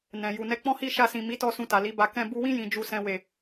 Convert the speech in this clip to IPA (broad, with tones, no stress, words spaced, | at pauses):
nɛ̃˨ ju˨nɛ˧k͡pɔ̃˦hi˦˨ ʃa˧sĩ˨ mi˨˦tɔ˧ sũ˧ta˨ li˨˦ba˧ kɛ̃˧ bu˧wĩ˦ jĩ˧d͡ʒu˧sɛ̃˧ we˨